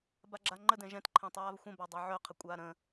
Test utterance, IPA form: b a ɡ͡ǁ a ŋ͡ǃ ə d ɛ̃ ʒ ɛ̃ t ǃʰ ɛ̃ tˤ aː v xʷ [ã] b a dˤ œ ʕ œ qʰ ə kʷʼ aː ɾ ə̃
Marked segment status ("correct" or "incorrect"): incorrect